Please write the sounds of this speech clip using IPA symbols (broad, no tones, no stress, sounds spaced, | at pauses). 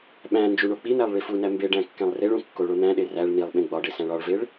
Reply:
ɓ æ̃ n d͡ʒ u ɳ o k͡p i n̪ æ lˠ ɭ i f u n æ m b e ɖ æ̃ kː æ̃ lˠ r e ɭ ũ kː o ɭ o n̪ æ̃ ɗ e r æ ɭ n̪ i lˠ ɓ ẽ ɡ͡b ɒ ɖ e s æ̃ ɭ ɒ ɭ v e ɭ